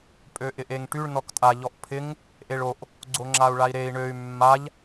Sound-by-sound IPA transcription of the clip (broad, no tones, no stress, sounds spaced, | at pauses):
pʼ ø ʔ ɪ ʔ e ŋ ʈ y ɭ n ɔ k tʼ a ʎ ɔ ʔ pʰ ɪ ŋ | ʔ e ɭ o ʔ | ɡ͡ǀ o ŋ͡ǁ a u̯ ɭ a i̯ ɾ e i̯ ɳ ø y̯ mː a ʎ